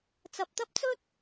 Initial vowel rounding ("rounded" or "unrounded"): unrounded